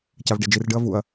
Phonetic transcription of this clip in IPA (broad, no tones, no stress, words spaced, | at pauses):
cavɖed͡ʒirɖɯɐ̯ vuɐ̯